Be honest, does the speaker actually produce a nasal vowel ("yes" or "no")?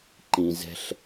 yes